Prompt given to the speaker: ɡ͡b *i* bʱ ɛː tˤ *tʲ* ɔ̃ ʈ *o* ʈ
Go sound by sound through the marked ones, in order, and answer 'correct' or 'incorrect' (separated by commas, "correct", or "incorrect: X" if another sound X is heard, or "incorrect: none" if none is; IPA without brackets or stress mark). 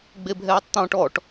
incorrect: e, incorrect: t̪, incorrect: ɔ